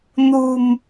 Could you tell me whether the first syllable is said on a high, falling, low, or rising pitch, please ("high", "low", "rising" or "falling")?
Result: low